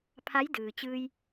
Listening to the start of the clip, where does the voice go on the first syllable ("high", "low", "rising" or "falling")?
rising